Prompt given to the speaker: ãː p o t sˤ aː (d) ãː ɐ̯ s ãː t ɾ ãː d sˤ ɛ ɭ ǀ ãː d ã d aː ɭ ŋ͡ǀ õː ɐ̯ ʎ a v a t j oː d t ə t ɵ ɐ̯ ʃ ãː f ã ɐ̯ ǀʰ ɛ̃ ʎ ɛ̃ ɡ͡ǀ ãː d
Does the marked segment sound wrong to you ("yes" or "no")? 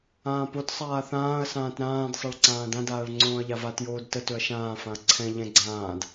yes